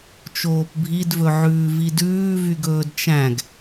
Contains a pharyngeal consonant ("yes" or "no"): yes